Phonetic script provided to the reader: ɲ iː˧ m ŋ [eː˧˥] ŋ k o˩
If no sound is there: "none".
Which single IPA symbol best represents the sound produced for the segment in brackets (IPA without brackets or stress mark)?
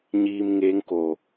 eː˧˥